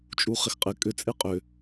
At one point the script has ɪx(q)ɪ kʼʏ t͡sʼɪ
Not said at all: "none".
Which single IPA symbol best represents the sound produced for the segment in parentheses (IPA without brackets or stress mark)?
qʼ